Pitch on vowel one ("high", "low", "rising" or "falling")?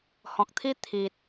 low